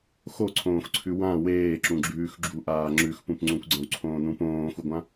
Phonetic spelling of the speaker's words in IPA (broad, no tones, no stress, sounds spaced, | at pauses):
x o ǀʰ õː x ǀʰ ʉ w ã w eː ǁ ũ ɡ͡ǁ ʉː x ɡ͡ǁ u ʔ aː ŋ͡ǁ ʉ x p ũ p ŋ͡ǀ ũ kʷ ɡ͡ǀ ɐ̃ w ǀʰ õː n ũ p õː x u ɡʷ ã